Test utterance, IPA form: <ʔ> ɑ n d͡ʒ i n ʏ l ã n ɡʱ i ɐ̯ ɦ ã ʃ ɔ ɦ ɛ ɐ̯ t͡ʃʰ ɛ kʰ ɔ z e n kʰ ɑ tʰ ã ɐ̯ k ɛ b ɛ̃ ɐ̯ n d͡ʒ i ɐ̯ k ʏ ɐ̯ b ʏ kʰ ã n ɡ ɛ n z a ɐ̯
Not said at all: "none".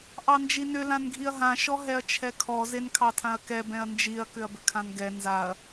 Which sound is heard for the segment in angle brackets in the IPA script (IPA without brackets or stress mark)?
ʔ